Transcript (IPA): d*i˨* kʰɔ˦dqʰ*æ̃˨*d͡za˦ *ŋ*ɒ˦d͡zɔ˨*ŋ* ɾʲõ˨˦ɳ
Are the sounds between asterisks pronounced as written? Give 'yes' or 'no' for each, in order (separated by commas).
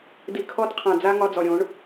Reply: yes, no, yes, no